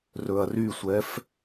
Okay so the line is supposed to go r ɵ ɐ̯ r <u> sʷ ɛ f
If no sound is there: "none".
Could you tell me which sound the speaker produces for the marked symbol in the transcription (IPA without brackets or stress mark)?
y